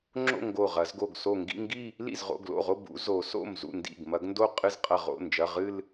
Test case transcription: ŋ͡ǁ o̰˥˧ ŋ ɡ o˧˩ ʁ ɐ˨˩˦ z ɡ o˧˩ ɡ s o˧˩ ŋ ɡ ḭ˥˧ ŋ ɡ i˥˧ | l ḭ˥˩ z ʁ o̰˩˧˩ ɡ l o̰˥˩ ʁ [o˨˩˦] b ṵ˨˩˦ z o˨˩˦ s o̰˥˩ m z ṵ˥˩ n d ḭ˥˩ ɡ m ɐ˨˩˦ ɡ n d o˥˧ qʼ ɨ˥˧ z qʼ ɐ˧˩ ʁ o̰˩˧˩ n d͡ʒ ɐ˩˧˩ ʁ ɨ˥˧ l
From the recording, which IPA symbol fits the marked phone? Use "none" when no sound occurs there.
o˥˧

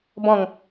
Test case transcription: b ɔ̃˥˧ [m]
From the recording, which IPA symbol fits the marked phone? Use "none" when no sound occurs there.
ŋ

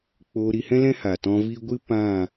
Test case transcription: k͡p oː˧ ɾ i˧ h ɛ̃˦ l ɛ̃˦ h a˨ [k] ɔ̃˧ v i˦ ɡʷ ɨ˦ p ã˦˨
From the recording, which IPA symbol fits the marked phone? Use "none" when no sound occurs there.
t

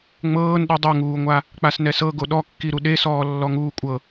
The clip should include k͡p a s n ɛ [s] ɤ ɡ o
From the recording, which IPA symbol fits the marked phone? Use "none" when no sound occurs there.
s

